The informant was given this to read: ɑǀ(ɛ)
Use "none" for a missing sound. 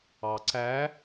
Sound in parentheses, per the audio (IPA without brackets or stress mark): æ